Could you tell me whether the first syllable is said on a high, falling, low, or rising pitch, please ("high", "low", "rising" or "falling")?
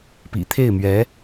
low